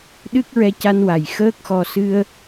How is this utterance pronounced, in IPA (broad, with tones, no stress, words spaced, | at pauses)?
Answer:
ɗɨ˦˥k̚ɹɛ˧ca˧nwa˨˩j xəː˦˥k̚xɔ˧ sɨ˧ə̯